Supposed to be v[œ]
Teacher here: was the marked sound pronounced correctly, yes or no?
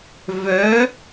yes